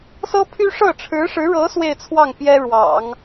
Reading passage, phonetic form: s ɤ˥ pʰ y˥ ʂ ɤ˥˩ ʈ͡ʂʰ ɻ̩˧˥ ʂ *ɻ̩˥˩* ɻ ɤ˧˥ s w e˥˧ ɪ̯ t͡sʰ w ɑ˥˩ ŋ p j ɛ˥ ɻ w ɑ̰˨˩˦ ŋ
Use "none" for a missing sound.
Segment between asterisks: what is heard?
ɻ̩˧˥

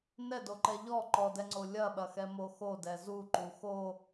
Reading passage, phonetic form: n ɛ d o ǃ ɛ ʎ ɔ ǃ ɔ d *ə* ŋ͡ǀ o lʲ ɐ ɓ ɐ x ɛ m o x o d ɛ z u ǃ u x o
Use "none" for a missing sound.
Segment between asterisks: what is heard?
ɛ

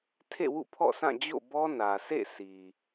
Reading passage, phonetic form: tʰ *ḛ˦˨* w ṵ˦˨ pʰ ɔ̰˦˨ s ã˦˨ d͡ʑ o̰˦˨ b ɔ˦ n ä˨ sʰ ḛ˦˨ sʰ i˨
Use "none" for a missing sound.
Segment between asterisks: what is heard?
ḛ˦˨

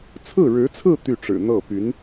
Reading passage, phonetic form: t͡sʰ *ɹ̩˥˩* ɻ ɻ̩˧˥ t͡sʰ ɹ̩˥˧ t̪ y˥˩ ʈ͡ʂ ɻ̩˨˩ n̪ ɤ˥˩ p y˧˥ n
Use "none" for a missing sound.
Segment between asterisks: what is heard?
ɹ̩˥˩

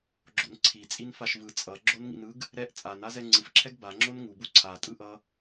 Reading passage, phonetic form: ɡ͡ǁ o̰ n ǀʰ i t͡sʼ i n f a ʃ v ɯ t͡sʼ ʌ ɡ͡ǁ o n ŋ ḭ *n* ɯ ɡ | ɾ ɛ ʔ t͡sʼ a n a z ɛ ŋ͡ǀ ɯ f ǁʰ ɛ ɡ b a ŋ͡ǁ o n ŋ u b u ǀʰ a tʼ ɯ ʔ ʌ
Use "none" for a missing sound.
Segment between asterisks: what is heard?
n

